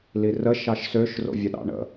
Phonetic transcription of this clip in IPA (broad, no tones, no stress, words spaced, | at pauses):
lirə ʃɑʃsøʃ ro̰vʲəɗɑ̰ɳə̰